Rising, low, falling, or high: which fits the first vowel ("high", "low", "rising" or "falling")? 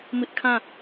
high